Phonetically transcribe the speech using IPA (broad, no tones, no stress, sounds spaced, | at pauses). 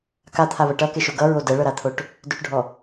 k a t̪ʰ a β ɤ ʈ ʌ k e ʃ o ɡ ʌ ɹ o d ɛ ɭ ɤ ɾ a t̪ʰ o ʈ | d ø ʈ ɖʱ ɔ